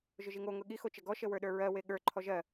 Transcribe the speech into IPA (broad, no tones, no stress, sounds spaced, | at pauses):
ʒ ʊ ʒ i ŋ o ŋ ʊ ɠ i x o t͡ʃ ə ɡ ɔ ʃ ə w ə˞ ɗ ə˞ ɹ ɜ w e ɠ ə˞ ǃʰ ɔ ʒ ɜ